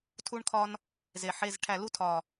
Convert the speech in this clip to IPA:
tʰ u˥ ɳ kʰ ɒ˥ n | z e˨˩ ħ e˧˥˧ z ʈʰ æ˦˨ l u˥ tʰ ɒ˨˩

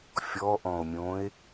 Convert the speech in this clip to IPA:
fʲ ɔ ʔ ɔ̃ o̯ mʲ õː e̯

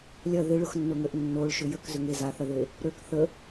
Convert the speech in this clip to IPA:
lʲ ɐ ð ɪ ɭ ʊ x nː ʊ ŋ ø ʔ nː o ɭ ʃ ʏ j ə k z ʏ ŋ e z a θ ɐ ð e | ɾ ø k θ ə

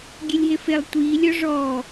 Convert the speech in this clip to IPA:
ɡʲ ɛ lʲ ɦ e f e lˠ tʷ iː lʲ ɔ ʐ ɔː

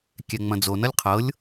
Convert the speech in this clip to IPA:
kʲ ɛ ŋ͡m ɐ̃ d͡z o n ʌ lʲ qʰ ɤ lʲ

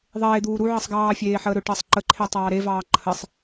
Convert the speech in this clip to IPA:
ðˤ eː d̪ uː ɾ u ʕ ə sˤ ɡ ɑː fʲ eː ħ əː ɾ ɵ ʈ əː sˤ ǃ ə ǃʰ e tˤ ɑː ɾ e v ɑː ǃʰ ə sˤ

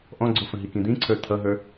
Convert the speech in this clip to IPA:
ʔ ɔ̃ ɡ͡ǀ ʊ f ə̃ ɦ i k ĩ d̪ ĩ ǀʰ ə˞ t̪ʰ ʌ ɦ ə˞

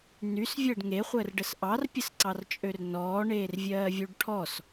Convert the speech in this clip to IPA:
n y s vʲ əː ɖ ŋ e χʷ əː r ɖ ə s ʔ ɑ r pʲ ə s ǀ ɑ r t͡ʃʼ ø r n ɔː ɳ eː r vʲ ɜː vʲ u ɖ ʈʰ ɔ s

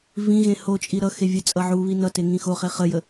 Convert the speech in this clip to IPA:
v ĩ ɣ ẽ h o t͡ʃʼ i ɾ ʌ x e vʲ ə t͡sʼ ʌ ʕ u β i n ʌ t e ŋ ĩ x o χ e χ ə j ə

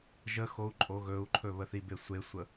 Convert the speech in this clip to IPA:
ʒ ə x o u̯ ǃʼ o ɣ ɵ u̯ ǃʰ ɵ β ə θ i b e sʷ e sʷ ə

